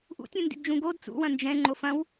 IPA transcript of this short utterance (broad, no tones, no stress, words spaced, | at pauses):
ʔṵtʲũndḭdd͡ʒũ ɡod t͡sṵwɐ̃ nd͡ʒɛ̃ŋ͡ǃo fɐ̃w